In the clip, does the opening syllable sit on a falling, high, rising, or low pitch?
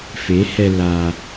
rising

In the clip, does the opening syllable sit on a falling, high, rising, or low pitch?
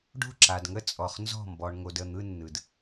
falling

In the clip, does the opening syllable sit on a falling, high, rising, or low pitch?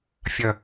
falling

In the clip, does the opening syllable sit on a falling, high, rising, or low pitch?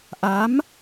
rising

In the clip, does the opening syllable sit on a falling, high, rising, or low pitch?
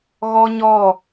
high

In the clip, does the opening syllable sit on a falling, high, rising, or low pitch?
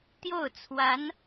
falling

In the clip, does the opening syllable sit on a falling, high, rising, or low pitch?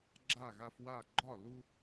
falling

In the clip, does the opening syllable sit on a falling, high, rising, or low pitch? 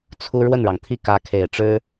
high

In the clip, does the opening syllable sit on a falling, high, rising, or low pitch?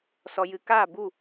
low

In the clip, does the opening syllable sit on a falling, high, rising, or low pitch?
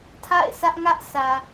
falling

